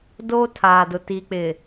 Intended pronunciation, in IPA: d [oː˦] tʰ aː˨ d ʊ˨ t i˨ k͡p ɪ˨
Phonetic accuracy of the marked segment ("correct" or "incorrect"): correct